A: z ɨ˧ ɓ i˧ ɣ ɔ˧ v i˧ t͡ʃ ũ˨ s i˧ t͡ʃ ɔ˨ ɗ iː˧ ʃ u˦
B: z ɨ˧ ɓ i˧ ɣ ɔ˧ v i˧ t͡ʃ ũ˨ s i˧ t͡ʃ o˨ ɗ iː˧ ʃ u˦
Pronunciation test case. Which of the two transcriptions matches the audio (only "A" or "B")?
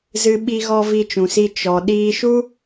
A